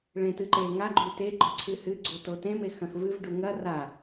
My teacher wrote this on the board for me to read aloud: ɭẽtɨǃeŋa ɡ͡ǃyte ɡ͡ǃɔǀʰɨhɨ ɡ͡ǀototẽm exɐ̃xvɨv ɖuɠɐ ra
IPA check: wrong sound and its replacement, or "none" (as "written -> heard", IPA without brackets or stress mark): ɠ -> ŋ